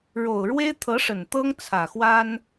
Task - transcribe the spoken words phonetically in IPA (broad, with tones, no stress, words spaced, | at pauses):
ɻo˨˩ʊ̯ɻwe˥ɪ̯t̪ʰɤ˧˥ʂə˨˩n t̪ɤ˥ŋt͡sʰä˨˩xwa˥n